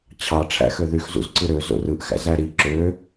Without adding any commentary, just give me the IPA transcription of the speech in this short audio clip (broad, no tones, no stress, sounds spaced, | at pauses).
t͡ɕʰ ɑ ʈ͡ʂʰ æ̰ x ø ð y x z ṵ z ǀ ɯ ɾ ø z o̰ r ɯ ʔ x æ̰ z æ ɾ i ǁ ø